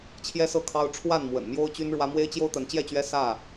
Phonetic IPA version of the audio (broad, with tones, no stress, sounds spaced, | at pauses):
t͡ɕʰ j ɛ˦ s ɤ˥˨ kʰ ɑ˦ ʊ̯ ʈ͡ʂʰ w a˥˨ n m w ə̰˨˩ n m j o˦ ʊ̯ t͡ɕ y˦ n ɻ w ä˦ m w e˦ ɪ̯ t͡ɕ j o˦ ʊ̯ t̪ ə˨˦ n t͡ɕ j ɛ˥˨ t͡ɕ ɥ ɛ˦ s ä˥˨